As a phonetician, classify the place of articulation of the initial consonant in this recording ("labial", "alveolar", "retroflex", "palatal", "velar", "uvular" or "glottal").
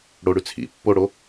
retroflex